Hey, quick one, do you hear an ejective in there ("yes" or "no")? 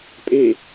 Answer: yes